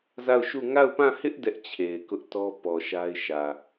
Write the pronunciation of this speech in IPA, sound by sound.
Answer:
z a˦˨ ʊ̯ ʃ u˦˨ ŋ a˦˨ ʊ̯ p ã˦˨ h ɪ˦ ʔ d ɛ˦ ʔ t͡ɕʰ e˨ ɪ̯ k ʊ˦ ʔ t ɔ˦ p ɔ˨ ʃ a˦ ɪ̯ ʃ ä˨

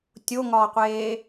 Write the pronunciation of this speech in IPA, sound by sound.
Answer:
tʲ o ŋ ɒː qʷ eː

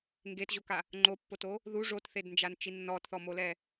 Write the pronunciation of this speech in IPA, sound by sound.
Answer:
ŋ ɡ e t ʑ o k a | ŋ͡ǃ o pː o t o | ð u ʐ o t θ e d n d͡ʒ a n t͡ʃ i nː ɔ t θ ɔ m o l ɛ

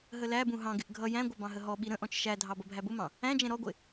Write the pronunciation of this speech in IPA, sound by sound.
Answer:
ɦ ə l æ b ũ ɦ ɑ̃ ɡ ɪ ʔ ɡʱ ʌ j æ̃ ɡʷ ʌ b ɑ̃ ɦ ə ɦ ɔ ɓ i ɾ ə̃ ʔ ɔ̃ t͡ʃ ʃ æ dʱ ɑ b ʌ bʱ æ b ʊ m ɑ̃ | æ̃ d͡ʒ ɛ̃ ɾ ɔ ɡʷ ɪ

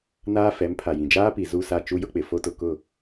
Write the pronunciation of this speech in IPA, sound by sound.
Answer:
n aː˦ f ɛ˨˦ m pʰ a˨ j ĩ˨ d͡ʒ aː˦ p i˨ z u˦˨ s a˦˨ t͡ʃ u˦ j ʊ˦ k͡p ɪ˨ f o˦ t ʊ˨ k ʊ˦˨

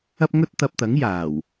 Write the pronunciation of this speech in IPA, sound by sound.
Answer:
ɐ˥ p̚ ŋ ɵ˥ t̚ t̪ ɐ˧ p̚ t̪ ɐ˨˥ ŋ j aː˨˩ w

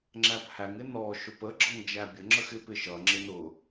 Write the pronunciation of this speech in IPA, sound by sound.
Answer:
ŋ͡ǁ æ p h æ ŋ ɪ n ɔ ʃ ʊ p ə ɡ͡ǁ ʌ ŋ d͡ʒ æ bʲ ə ŋ͡ǁ ə x ɪ p ɪ ʃ ʌ ŋ͡ǁ ɪ n ʊ

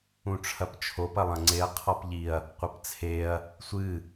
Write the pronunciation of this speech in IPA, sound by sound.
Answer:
ũ ʈ͡ʂʰ ɐ p t͡ʃʰ o p ɐ lˠ ɐ̃ ŋ͡ǀ e ɐ̯ qʰ ɔ p ʎ i ɐ̯ | qʷ ɐ p t͡sʰ e ɐ̯ | sʷ ɨ

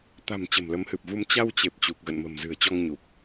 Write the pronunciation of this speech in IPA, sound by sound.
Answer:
t̪ a̤˨˩ m t͡ɕ ə̤˨˩ m l ə˨˦ m h ɨ˨˩ p̚ v u˧ m t͡ɕ a˧ w t͡ɕ e˨˩ p̚ t͡ɕ u˨˩ k̚ ɣ ə̰˧˨ n m ə̤˨˩ m z ɨ̤˨˩ ə̯ t͡ɕ ɔ˧ ŋ ɲ u˨˩ p̚

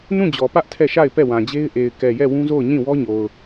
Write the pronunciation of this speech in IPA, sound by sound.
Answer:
n ũ˦˨ d͡ʑ ɔ˨ p ä˦ ʔ tʰ ɛ˦˨ ʃ a˦˨ ɪ̯ p ɛ˦˨ w ã˨ d͡ʑ e˦ ɪ̯ ʔ e˨ ɪ̯ k ɛ˨ j ɛ˦˨ w ũ˦ z o˦˨ ʊ̯ ɲ ĩ˦˨ w ɔ˦ ɲ o˨ ʊ̯

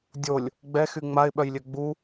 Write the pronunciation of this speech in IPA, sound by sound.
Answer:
dʲ o lʲ | ɡ͡b ɛ x y ŋ͡m a ɪ̯ ɓ œ j lʲ ø ɡ͡b u

